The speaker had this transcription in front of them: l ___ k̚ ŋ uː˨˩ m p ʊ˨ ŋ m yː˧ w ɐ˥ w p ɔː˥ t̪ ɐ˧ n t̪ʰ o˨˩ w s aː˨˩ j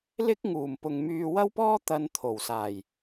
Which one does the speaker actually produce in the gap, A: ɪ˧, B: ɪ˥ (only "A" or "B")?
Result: B